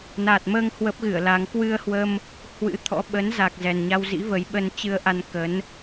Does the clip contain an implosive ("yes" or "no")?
yes